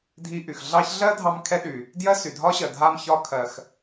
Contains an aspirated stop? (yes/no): yes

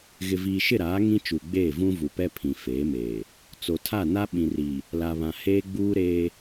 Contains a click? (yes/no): no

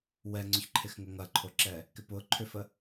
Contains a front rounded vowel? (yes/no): yes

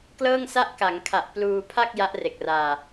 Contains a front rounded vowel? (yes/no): no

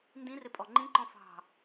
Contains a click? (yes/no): yes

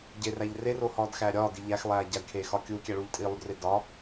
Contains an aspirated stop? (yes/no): yes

